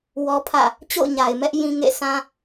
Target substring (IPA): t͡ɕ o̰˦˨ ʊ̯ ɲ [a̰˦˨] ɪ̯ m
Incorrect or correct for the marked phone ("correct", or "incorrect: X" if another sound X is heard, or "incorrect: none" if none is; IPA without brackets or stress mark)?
incorrect: a˨